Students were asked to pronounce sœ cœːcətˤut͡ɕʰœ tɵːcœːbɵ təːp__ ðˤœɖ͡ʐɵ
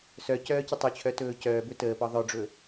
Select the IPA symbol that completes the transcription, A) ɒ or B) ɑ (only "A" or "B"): A